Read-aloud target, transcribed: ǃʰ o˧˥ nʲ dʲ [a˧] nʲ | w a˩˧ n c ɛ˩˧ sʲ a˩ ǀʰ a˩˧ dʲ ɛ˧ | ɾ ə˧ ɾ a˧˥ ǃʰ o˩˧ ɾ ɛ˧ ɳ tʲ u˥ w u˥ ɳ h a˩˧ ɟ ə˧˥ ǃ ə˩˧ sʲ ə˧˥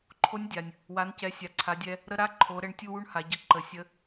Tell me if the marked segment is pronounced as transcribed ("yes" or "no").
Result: no